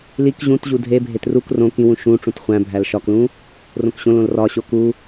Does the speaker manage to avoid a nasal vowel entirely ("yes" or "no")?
no